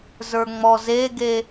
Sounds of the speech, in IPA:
z ə˞ ŋ͡m ɔ z e ɡ e

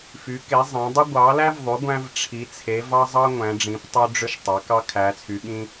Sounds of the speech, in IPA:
f y˩˧ k e˩˧ zˤ æ̃˩˧ dˤ y˧ ɡʷ ɑ˩˧ l æ˧ v ðˤ y˩˧ ɡʷ æ̃˧ v ʈ͡ʂʰ i˩˧ t͡sʰ e˩˧ v ɑ˧ zˤ ɑ˧ ŋʷ æ̃˩˧ ɖ͡ʐ ĩ˩˧ p tˤ ø˧ ɖ͡ʐ ø˧ ʃ tˤ ɑ˩˧ k ɑ˧ kʰ æ˩˧ t͡sʰ y˩˧ ɠ ĩ˧

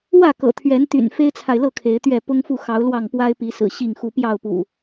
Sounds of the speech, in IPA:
w ä˥˨ k ɤ̰˨˩ t̪ʰ ɥ ɛ˨˦ n t̪ y̰˨˩ n f e˦ ɪ̯ t͡sʰ a˨ ɪ̯ l ɤ˥˨ kʰ e˨˦ ɪ̯ t̪ ɥ ɛ˥˨ p ʊ˦ ŋ f u˥˨ x ɑ˨˦ ʊ̯ l w ɑ˥˨ ŋ p w a˦ ɪ̯ p i˨˦ s ɹ̩˨˩ ɕ i˥˨ ŋ x u˦ p j ɑ˥˨ ʊ̯ p ṵ˨˩

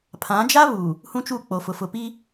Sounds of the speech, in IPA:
pʰ ã˨˦ d͡ʒ a˦ β u˨ | h ũ˦ t͡ʃ u˦˨ k͡p o˨ f ʊ˨ f ʊ˨ p i˦

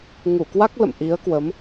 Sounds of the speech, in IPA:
ŋ u˧˩ k w a˦˥ k̚ l ə̰˧˨ m ʔ i˨˦ ə̯ k w ə˨˦ m

